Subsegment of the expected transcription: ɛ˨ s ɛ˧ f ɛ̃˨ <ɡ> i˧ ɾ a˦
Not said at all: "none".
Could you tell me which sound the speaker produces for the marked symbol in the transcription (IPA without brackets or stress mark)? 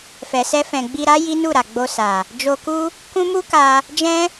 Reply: ɡ͡b